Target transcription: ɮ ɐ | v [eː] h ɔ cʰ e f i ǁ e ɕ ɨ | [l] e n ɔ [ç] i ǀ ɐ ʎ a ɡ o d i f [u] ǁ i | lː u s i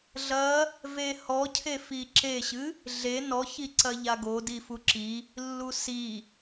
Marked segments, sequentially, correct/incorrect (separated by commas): incorrect, incorrect, correct, correct